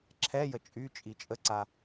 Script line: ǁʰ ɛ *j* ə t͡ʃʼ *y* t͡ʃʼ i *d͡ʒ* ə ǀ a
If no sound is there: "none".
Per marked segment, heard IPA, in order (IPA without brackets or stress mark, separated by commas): j, y, t͡ʃʼ